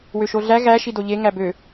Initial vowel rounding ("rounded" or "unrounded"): rounded